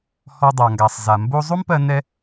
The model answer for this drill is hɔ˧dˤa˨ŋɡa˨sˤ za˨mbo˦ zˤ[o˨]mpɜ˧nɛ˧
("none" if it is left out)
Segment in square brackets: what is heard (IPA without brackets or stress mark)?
o˦